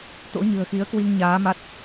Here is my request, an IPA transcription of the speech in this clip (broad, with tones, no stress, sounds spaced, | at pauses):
t̪ o̰˧˥ ɲ ɨ̤˨˩ ə̯ x i˨˦ ə̯ k w i˧ ŋ ɲ aː˨˦ m a˦˥ t̚